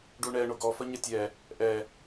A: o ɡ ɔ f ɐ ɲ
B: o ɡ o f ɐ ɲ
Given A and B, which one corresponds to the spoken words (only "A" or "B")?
A